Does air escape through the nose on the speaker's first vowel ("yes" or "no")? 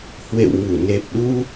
no